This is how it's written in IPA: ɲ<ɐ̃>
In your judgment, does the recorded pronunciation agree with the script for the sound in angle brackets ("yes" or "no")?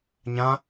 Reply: no